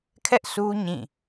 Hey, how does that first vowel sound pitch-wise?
high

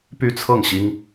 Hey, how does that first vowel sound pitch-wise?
falling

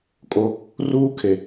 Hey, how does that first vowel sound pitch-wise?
high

